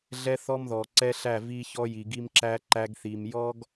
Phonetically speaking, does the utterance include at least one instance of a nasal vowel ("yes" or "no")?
no